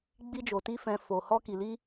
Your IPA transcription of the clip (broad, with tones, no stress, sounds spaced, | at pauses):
ɡ͡b i˦ d͡ʒ o˧ t i˦ f ɛ̃˧ f o˧ h ɔ˦ k i˧ l i˦